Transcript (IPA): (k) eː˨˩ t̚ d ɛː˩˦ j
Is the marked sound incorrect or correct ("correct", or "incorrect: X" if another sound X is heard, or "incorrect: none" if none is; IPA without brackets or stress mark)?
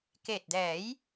correct